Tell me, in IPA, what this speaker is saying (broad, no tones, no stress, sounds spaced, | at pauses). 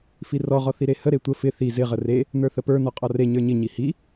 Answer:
f i r ɔ ʁ ɔ θ i ɾ e h ə ɾ e tʷ ə f ɪ θ i z ɪ ʁ ə r e | n ə˞ θ ə p ə˞ n ɔ qʼ ɔ r e ɲ ə˞ ɲ ɪ ɲ i h i